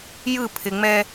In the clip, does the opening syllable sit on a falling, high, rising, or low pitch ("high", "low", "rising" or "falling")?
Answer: falling